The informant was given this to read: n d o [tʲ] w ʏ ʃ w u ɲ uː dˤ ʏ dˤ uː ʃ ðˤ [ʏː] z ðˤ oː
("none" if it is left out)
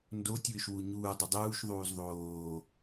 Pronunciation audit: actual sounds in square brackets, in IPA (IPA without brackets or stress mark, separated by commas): tʲ, uː